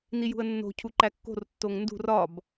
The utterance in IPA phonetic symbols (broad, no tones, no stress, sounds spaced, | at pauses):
n i j ṳ ə̯ nː o̤ cʰ u ǃ æ kː o̤ r tː o ŋ n d ṳ r ɒ b